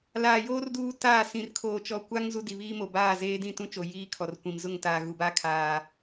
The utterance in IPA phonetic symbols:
l aː˨ j oː˦ r d uː˦ t aː˦˨ s ĩ˨ r kʰ oː˨ t͡ʃ ɔ˨ kʷ a˦ ŋ z u˦ d i˨ β iː˦ m o˨ b aː˦˨ z eː˦ d ĩ˦˨ t ũ˦ t͡ʃ o˨ j iː˦ kʰ ɔ˨ r kʷ ĩ˨ m z ʊ˦˨ ŋ t aː˨ ɣ u˨ b a˦ kʰ aː˦

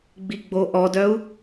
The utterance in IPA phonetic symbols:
ɡ͡b i ɡ͡b o ʔ ɔ d œ u̯

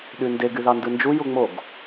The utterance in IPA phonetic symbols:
ɗ y n d e ɡ y ð ɑ n d ɯ n d͡ʒ u j u ŋ͡m o ɡ

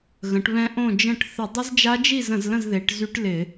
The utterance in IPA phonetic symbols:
ɣ ə̃˩˧ ʈ β ɛ̃˧ ʔ õ˥˨ d͡ʒ ə̃˥˨ ʈ θ ə˧˩˧ dˤ ɪ˦˥ z d͡ʒ a˦˥ d͡ʒ i˥˨ z ə̃˧˩˧ z l ə̃˥˨ z ð e˩˧ ʈ z y˦˥ ʈ l ɪ˧˩˧

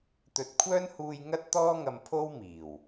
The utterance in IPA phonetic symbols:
t̪ ɵ˨˥ t̚ kʷʰ œː˥ n h uː˧ j ŋ ɐ˥ t̚ t̪ ɔː˥ ŋ ɐ˧ m pʰ o˥ w m iː˨˩ w

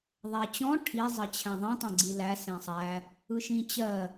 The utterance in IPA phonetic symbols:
ðˤ æ t͡ɕ ɔ̃ ʈʰ i zˤ ɜ t͡ɕʰ æ̃ ðˤ ĩ tˤ ɛ̃ ɡ͡ǀ i l æ s ɛ̃ sˤ æ | ɯ ʃ ĩ t͡ɕ ɜ

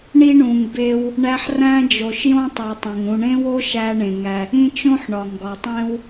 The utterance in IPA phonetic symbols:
ɳ i˦ ɳ ũ˩ ŋ b e˦ w | ɳ æ˦ ħ r æ̃˥ d͡ʒ o˨ ʃ j õ˥ tˤ u˩ tˤ õ˩ ŋ ũ˨ ɳ ẽ˦ w o˥ ʃ æ˦ ɳ ẽ˩ ŋ æ˨ | ĩ˦ t͡ʃ õ˥ ħ ɳ ɒ˩ ŋ ɡ ɒ˩ tˤ ẽ˦ w

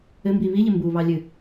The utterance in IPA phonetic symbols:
ɘ m b i β i ʎ ɘ m b u β ɑ lʲ ɨ

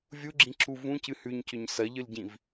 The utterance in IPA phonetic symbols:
vʲ u ɡ͡ǁ ĩ ǁʰ u v ũ c ɨ h ʉ ɲ c ɵ ɲ s ɐ ʎ ɨ l ɟ ĩ v

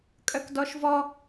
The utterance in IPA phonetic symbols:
kʼ œ k d ɔ ʃ v ɔ

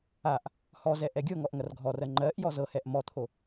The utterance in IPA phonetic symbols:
a ʔ | h ɔ z ɛ ʔ ɛ ɡʲ ɤ ŋ ɔ ʔ ŋ ɐ r ɡʱ ɔ r ɜ ŋ͡ǃ ɜ ʔ j ɔ z ɤ h ɛ ʔ m ɔ t̪ʰ o

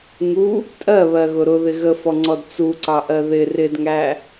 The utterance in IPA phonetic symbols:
ŋ u | tʼ ɜ β ɜ ɣ ʊ ɾ ʊ ð ɪ ɣ ə f ɔ ŋ͡ǀ ɔ d t͡s u ǀ ɑ ʔ ɜ ð ɪ r ɪ d ŋ æ

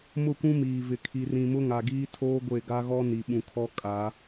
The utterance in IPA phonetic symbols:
m ʊ˦˨ kʷ ũ˦ m iː˨ v ɪ˨ kʰ i˨ r ĩ˨ m ʊ˦ ŋ a˨ ɡ iː˦ tʰ oː˦ ɡʷ e˦˨ ɡ a˦ ɣ ɔ˦ n i˨ ɓ ũ˨ kʰ ɔ˦ kʼ a˨˦

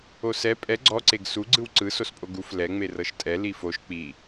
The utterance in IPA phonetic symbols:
o s ɛ pʼ ɛ ɡ͡ǀ ɔ ǀ e ɡ s u ɡ͡ǀ ɯ w ǀ ɯ s o s pʼ o ɡ u f l ɛ ŋ͡m e r ɤ ʃ tʼ ɛ l i f o ʃ k͡p i

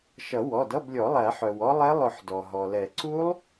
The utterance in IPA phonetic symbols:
ʃ ʌ˨˩˦ w ɔ˩˧˩ d ʌ˧˥˧ b lʲ ɔ˨˩˦ lˠ æ˨˩˦ ħ œ˩ w ɔ˦˥ lˠ ɛ˦˥ lˠ ʊ˨˩˦ ħ d ɔ˩ ɦ ɔ˩ l ɛ˨˩˦ ǀ u˦˥ lˠ

